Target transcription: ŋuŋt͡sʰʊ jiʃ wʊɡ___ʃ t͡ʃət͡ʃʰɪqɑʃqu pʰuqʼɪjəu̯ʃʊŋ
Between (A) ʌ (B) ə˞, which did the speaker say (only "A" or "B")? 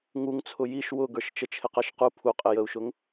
B